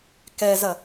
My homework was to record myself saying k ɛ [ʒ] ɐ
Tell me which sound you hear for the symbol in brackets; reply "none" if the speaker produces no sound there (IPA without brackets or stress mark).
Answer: z